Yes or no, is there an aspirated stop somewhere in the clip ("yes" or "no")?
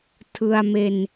yes